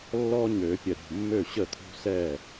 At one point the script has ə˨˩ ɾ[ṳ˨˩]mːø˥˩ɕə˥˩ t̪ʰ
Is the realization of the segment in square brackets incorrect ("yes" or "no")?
no